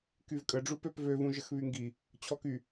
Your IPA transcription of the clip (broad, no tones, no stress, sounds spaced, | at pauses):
k y v kʼ ə ɖ͡ʐ u p ø p v ø v ũ ʒ ə x β y ŋ ɡ i | t͡ɕʰ ɔ k y